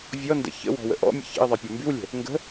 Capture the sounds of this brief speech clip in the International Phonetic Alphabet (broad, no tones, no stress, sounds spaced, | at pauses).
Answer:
vʲ ɔ n d ə̰ ç ə̰ w ɔ̤ w ə̰ ʔ ɔ̰ mʲ ə̰ ç ə̰ ɪ̯ ðˤ e pʲ ɔ m b y w lʲ ə̤ | ŋ ɡ ə̤